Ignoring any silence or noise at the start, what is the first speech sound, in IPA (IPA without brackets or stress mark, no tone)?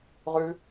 ʁ